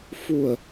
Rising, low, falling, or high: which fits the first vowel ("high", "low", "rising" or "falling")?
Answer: low